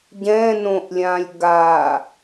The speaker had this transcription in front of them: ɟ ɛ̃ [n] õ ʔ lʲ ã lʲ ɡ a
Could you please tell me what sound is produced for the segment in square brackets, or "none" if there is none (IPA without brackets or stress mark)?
n